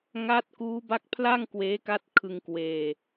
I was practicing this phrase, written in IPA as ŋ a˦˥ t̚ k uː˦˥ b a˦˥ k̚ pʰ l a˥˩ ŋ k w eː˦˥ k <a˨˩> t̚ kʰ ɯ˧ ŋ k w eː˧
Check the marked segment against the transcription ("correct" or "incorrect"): incorrect